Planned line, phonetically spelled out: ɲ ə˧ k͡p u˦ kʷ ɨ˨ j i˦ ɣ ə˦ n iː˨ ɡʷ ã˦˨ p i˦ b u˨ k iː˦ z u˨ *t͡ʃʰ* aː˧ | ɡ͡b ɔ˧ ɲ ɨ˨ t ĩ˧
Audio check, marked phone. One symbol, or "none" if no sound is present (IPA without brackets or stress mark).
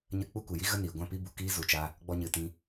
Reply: t͡ʃ